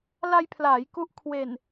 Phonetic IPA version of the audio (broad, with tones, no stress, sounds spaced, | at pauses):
l a˧ j pʰ l aː˩˦ j k u˦˥ ʔ kʰ w e˨˩ n